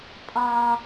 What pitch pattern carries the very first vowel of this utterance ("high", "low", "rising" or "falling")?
low